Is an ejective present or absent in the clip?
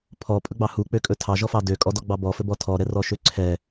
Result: present